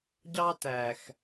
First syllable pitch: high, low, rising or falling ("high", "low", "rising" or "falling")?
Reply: high